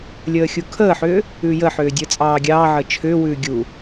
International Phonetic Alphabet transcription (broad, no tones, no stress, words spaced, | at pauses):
lʲəːxʲukʰəːħʏː | ʉːjəħʏː dʲəːt͡sʼɑːɡʲɑːʕəː t͡ʃʰʏːwʉː ɡʲu